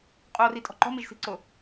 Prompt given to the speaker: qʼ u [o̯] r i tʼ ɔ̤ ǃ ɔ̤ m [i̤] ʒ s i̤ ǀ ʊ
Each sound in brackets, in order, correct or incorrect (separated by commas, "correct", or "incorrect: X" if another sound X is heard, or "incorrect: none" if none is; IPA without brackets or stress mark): correct, incorrect: i